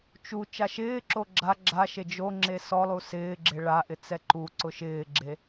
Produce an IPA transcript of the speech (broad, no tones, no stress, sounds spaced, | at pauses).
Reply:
t͡ʃ u t͡ʃ a ʃ ɪː ǁ o ɡ͡ǁ a ɡ͡ǁ a ʃ e d͡ʒ o ŋ͡ǁ e s ɔ lˠ u s ɪː ɡ͡ǁ e ɭ a ʔ ɪ t͡s ɛ ǃ u ǀ ʊ ʃ ɪː ɡ͡ǁ e